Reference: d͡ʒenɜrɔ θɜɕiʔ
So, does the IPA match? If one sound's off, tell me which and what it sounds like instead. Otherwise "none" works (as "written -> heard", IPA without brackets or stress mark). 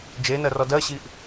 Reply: θ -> d